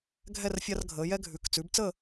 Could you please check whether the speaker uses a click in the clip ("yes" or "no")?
no